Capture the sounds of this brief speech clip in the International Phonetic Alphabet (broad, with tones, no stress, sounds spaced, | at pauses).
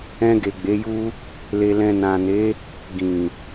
ɛ̃˧ ɡ e˨ ɡ͡b e˨˦ j u˦ | l e˨ l ɛ̃˨ n ã˨ n e˨˦ | ɡ ĩ˨